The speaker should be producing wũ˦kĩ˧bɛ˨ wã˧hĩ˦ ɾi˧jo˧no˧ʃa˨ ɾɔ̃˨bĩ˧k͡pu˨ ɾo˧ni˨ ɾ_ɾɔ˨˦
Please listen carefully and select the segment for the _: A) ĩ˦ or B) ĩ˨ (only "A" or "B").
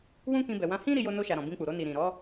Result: B